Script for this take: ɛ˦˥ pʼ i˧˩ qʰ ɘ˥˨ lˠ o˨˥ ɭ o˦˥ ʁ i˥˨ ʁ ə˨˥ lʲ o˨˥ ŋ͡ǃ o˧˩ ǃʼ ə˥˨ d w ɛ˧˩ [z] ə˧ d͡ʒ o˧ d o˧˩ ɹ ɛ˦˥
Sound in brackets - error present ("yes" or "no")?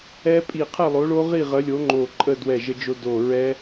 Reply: yes